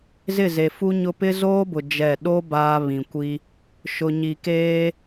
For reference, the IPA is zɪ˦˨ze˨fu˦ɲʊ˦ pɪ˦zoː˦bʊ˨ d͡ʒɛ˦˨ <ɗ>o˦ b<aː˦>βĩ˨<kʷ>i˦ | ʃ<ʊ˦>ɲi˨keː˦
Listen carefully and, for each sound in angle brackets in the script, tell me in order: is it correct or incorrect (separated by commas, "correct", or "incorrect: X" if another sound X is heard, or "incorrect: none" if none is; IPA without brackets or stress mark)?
correct, correct, correct, incorrect: ʊ˨